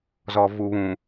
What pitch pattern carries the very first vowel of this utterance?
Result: low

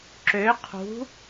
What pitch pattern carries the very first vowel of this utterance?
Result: rising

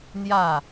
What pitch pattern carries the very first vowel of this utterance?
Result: falling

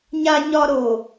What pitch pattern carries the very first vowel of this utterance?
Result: high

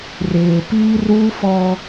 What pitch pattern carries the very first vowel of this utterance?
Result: low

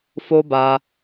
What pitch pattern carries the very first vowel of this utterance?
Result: high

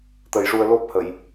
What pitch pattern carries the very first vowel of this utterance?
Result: low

